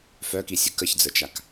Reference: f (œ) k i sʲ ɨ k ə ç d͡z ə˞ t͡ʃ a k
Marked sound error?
no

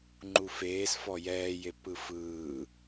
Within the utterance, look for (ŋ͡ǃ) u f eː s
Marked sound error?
no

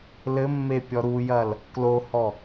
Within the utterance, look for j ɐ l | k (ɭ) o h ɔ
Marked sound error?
yes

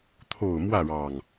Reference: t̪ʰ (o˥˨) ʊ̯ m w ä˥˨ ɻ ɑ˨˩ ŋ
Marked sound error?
yes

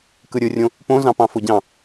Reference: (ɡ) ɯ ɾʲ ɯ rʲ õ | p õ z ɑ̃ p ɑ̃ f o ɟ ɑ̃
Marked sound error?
yes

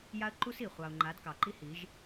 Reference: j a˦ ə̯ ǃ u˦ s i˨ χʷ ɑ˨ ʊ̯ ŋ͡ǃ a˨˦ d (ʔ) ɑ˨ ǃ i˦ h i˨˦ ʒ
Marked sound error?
yes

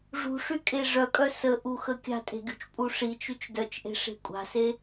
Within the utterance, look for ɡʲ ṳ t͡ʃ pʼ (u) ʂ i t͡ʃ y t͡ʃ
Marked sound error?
no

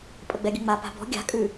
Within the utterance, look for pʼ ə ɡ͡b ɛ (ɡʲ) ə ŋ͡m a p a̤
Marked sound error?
no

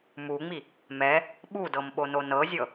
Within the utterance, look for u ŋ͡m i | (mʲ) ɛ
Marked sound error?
yes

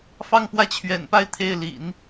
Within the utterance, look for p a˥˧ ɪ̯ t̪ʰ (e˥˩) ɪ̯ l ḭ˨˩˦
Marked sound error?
no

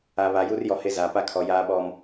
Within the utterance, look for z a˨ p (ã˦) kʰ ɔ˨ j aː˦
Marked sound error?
yes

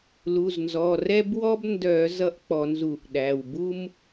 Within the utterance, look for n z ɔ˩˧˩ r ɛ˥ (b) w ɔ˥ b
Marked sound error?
no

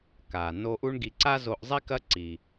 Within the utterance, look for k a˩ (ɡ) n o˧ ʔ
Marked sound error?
yes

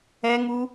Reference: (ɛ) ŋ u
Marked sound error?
no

